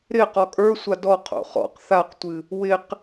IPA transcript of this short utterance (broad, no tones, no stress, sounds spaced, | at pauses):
ɾ ɪ q ɔ kʼ ə˞ sʷ a d ɔ qʰ o̰ χ ɔ̰ q θ a q tʷ ɨ | w ɪ q